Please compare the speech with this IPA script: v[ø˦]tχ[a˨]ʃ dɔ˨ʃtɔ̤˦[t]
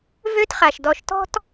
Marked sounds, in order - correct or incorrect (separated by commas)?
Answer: correct, correct, correct